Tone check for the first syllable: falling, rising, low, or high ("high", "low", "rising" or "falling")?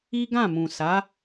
high